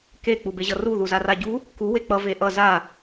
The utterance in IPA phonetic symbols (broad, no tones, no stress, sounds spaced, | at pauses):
k e k͡p u b e ʑ ʌ r u ð u z a r a ɟ u | k u w e k͡p ʌ v e ʔ ʌ z a